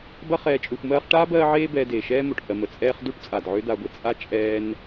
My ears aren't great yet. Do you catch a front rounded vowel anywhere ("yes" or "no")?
yes